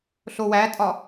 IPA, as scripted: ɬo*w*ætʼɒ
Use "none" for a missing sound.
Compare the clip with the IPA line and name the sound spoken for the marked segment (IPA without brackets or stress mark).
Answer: w